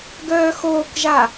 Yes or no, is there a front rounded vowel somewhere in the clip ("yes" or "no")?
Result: yes